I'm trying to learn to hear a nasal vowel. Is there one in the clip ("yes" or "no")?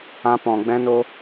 yes